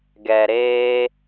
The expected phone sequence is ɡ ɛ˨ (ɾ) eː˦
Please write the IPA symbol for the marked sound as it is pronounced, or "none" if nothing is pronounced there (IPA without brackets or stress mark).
ɾ